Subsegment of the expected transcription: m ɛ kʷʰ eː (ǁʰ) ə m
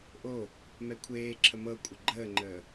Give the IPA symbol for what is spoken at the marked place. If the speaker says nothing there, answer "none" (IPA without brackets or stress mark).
ǁʰ